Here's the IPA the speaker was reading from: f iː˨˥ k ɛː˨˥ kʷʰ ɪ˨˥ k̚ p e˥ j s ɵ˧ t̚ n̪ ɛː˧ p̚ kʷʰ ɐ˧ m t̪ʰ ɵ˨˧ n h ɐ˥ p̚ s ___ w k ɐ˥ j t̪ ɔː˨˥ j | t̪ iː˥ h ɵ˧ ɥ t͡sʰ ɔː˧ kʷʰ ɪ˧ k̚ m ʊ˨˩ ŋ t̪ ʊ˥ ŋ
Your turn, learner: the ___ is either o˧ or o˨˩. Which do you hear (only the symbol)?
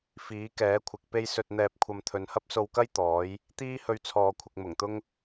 o˧